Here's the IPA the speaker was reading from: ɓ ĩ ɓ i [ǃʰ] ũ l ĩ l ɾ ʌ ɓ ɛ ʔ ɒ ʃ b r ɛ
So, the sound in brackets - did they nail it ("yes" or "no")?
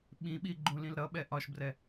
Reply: no